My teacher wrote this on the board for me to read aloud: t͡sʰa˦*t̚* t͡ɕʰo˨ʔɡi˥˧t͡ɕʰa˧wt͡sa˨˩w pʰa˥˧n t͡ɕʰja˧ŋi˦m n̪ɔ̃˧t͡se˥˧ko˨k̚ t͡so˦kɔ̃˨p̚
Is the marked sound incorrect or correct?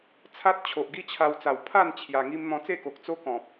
correct